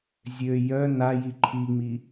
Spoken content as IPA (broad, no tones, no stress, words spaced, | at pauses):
zʲø jœ naji ǃʰiŋ͡mi